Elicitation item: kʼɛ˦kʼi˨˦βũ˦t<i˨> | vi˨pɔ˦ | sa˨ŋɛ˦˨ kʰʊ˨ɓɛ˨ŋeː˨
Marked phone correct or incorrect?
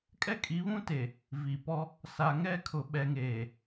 incorrect: e˨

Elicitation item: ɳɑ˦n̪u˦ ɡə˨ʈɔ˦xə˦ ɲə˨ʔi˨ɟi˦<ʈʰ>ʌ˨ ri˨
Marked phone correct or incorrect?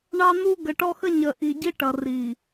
incorrect: ʈ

